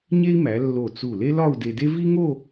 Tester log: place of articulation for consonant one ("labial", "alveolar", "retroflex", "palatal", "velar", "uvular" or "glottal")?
palatal